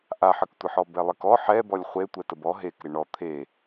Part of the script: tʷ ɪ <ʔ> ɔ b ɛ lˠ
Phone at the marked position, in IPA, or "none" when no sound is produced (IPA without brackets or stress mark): ħ